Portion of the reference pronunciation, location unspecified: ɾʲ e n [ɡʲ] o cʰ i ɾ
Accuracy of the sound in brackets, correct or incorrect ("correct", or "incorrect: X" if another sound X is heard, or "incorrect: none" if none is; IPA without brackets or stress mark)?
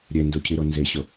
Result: incorrect: d